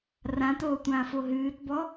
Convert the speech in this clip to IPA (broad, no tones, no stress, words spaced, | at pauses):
rãtoːtʷãːfo ɦɨːtbɔ